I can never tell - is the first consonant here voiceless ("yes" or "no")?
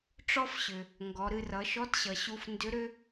yes